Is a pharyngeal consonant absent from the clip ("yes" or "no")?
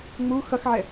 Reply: no